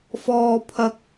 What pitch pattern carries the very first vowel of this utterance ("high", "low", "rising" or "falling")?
high